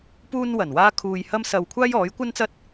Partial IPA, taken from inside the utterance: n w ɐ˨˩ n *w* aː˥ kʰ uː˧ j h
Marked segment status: correct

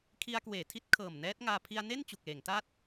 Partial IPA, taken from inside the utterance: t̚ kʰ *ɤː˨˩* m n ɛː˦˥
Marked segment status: correct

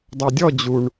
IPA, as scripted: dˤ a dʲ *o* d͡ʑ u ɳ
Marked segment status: incorrect: ɔ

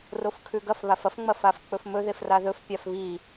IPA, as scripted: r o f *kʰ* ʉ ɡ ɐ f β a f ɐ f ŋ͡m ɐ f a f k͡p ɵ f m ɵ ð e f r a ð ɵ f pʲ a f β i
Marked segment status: correct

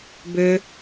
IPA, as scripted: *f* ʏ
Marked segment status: incorrect: b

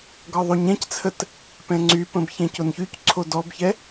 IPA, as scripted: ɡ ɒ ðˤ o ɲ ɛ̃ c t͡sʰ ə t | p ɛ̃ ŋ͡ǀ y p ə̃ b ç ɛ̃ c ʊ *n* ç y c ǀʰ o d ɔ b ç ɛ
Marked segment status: correct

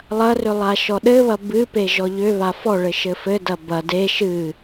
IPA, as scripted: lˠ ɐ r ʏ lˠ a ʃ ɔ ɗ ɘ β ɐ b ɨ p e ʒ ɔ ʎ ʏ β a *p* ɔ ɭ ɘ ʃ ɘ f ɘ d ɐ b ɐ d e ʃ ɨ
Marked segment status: incorrect: f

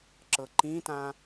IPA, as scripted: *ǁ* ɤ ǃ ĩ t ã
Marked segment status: correct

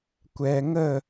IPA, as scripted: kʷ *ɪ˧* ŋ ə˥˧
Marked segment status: incorrect: ɛ˧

